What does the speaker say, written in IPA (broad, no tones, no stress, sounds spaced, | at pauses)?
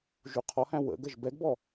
ʒ u qʰ ɔ h æ̃ w ə̰ ɡ ə ʒ b ɛ ɡ b ɔ